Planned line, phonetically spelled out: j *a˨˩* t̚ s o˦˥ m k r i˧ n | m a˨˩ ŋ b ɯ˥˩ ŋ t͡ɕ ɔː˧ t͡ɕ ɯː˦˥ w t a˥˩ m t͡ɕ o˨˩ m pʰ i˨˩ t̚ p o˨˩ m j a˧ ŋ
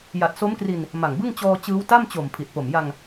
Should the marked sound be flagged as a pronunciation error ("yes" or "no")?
no